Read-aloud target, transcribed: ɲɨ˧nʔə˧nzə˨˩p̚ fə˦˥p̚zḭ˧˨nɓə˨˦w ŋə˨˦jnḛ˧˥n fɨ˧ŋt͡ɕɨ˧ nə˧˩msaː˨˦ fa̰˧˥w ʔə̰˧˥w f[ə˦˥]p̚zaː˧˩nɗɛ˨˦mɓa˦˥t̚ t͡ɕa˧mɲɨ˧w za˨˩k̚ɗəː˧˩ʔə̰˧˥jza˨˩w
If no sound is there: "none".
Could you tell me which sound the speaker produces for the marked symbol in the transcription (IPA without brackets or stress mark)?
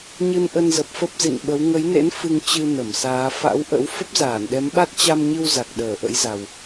ə˦˥